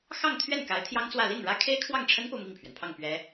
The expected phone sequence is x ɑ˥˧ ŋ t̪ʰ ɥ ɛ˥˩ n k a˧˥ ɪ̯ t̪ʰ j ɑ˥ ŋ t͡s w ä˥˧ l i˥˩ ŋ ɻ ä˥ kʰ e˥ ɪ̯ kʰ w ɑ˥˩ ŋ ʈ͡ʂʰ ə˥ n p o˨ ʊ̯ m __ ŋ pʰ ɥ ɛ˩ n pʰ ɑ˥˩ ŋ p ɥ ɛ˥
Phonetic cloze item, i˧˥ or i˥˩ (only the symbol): i˥˩